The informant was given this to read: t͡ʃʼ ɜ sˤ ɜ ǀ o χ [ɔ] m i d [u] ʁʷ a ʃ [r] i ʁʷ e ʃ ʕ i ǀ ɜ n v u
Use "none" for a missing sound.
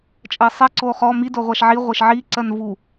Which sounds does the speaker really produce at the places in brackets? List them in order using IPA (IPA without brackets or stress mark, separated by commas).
ɔ, o, ʕ